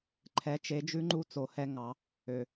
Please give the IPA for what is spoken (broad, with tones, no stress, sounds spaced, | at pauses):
ǃʰ ɛ˩˧ t͡ʃ e˩˧ d͡ʒ ʉ˧˥ ŋ͡ǃ u˧ t͡s o˩˧ h ɛ˧ ŋ ɑ˩˧ | ø˩